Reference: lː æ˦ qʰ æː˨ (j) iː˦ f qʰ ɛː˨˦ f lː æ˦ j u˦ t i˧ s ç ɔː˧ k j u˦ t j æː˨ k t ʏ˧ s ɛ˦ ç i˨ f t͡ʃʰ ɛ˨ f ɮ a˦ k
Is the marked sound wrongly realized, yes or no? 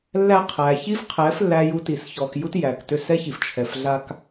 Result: yes